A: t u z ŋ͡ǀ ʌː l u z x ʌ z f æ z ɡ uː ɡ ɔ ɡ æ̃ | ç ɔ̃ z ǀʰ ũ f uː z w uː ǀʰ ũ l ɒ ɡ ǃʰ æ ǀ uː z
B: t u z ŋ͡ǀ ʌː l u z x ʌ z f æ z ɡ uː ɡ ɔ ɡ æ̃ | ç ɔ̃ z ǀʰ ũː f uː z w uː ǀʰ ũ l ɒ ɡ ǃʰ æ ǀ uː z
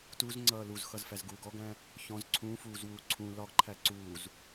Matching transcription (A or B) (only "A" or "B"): B